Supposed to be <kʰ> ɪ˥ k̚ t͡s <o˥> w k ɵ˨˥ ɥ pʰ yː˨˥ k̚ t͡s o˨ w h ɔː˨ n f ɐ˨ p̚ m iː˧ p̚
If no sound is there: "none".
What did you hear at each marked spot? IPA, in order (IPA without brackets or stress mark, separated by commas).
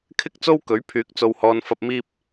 kʰ, o˥